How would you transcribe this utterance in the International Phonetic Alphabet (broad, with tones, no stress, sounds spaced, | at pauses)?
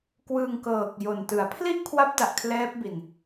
k w ɯː˧ ŋ k ɤː˨˩ k̚ j o˨˩ n t ɯ˩˦ a̯ pʰ l i˥˩ ʔ kʰ w a˦˥ p̚ d a˨˩ ʔ kʰ l ɛː˦˥ p̚ b i˨˩ n